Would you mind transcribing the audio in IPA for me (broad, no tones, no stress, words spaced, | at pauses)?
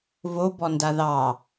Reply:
vobɔnda ðɑ